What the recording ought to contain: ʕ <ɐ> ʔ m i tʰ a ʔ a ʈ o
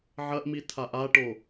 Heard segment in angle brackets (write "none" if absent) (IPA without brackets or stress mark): ɐ